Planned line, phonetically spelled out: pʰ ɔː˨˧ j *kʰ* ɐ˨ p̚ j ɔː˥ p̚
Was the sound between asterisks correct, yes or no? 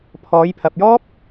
no